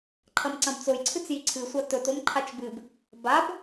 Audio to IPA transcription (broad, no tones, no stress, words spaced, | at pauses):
ǃʰɐmǀɐ̃bt͡sojǀʰɨt͡s jiǀʰɨsʷa tɵtom ǃʰat͡ʃbɨb | bab